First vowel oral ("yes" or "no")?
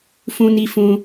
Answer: no